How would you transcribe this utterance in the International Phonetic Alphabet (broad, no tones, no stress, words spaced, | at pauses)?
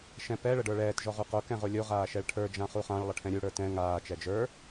ʃɛ̃pɛ ɭəɖə˞ɭɛːt ʒɔʁuqo kɛ̃ʁolʲo ʁaːʃɛɭʈʰə˞ d͡ʒãχuχãɭ lˠəʈʰɛ̃ɾʲu ɽə˞tɛ̃ ŋaː t͡ʃɛd͡ʒə˞